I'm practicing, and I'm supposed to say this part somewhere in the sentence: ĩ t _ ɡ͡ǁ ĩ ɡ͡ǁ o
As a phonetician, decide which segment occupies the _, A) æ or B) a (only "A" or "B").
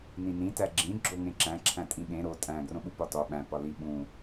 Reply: A